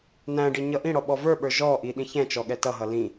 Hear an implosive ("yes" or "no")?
yes